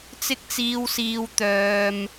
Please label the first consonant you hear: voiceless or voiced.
voiceless